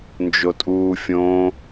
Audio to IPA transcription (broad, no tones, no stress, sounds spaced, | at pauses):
n d͡ʒ o tʼ uː fʲ õ